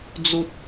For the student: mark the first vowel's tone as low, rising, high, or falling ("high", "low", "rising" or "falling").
high